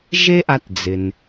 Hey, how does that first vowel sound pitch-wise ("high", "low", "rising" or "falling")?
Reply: high